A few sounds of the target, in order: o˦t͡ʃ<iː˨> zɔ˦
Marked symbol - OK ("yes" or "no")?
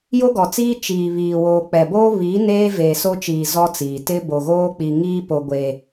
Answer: yes